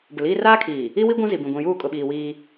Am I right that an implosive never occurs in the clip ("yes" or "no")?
no